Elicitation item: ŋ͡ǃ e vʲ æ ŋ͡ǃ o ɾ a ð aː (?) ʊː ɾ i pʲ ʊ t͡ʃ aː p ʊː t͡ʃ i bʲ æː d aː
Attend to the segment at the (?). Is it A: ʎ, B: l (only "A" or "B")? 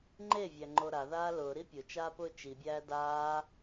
B